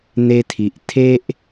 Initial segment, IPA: n̪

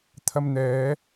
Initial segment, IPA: t̪ʰ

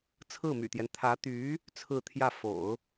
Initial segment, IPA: t͡sʰ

